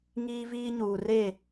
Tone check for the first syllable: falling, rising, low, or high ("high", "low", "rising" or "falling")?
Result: high